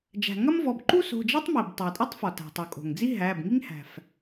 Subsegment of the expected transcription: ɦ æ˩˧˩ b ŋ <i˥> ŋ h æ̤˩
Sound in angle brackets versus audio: correct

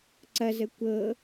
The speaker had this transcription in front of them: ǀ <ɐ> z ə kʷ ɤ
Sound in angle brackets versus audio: correct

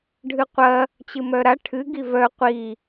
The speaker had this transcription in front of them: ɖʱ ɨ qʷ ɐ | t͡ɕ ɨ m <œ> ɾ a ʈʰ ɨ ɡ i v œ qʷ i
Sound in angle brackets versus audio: correct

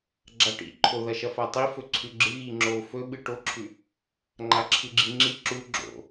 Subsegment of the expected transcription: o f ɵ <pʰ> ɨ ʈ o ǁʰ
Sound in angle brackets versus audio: incorrect: ɓ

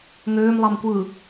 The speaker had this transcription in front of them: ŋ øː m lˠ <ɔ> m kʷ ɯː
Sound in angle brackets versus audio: incorrect: ɑ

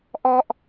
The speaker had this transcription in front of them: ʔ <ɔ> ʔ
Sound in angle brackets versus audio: correct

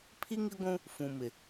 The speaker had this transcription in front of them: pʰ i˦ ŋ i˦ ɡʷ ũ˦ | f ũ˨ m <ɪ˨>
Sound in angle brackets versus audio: correct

